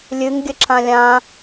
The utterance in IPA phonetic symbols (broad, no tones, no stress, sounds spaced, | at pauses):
lʲ ɨ ŋ ɡʲ ə ǁ ã lʲ ã